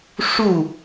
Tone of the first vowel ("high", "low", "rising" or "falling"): falling